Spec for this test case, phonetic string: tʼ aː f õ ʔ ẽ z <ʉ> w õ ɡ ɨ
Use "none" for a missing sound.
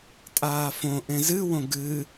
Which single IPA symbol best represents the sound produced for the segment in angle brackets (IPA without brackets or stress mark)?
ɨ